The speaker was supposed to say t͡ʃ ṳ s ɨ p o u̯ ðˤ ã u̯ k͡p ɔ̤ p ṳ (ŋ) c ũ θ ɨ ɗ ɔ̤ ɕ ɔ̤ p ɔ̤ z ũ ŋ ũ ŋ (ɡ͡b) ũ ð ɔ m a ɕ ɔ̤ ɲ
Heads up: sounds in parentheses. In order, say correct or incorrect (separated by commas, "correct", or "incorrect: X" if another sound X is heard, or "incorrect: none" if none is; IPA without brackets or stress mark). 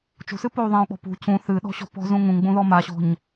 incorrect: none, correct